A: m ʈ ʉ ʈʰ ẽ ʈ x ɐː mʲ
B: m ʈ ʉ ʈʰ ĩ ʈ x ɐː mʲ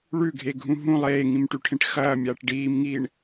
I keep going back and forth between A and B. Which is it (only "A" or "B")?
A